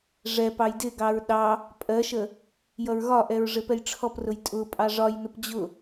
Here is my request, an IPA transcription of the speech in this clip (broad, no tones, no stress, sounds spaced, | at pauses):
ʐ ɛ p ɑ j d ɪ ɡ ɑ ɹ ɗ ɑ | pʼ ɜ ʃ ə | j ʌ ɹ ɣ ɒ ʔ ɛ ɹ ʐ ɪ p ɛ j ʈ͡ʂʰ ɔ p r ʊ j tʼ ʊ pʼ ɑ ʐ ɒ j n ʊ p d͡ʑ ʊ